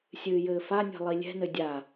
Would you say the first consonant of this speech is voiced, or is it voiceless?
voiceless